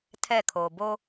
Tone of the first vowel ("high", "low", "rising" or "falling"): falling